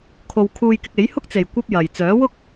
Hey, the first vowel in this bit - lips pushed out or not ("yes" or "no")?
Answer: yes